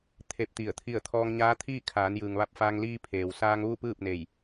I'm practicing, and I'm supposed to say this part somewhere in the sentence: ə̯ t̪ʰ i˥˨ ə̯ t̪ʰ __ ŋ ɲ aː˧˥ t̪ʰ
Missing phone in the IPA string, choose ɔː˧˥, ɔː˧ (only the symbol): ɔː˧